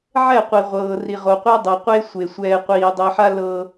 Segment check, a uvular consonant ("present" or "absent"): present